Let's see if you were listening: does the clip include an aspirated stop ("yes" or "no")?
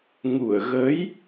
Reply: no